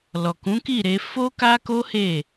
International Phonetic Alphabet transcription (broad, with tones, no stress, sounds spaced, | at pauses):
l ɔ˨ k ũ˨˦ k i˦˨ ɾ e˧ f o˦ k a˦ k o˦ h e˦˨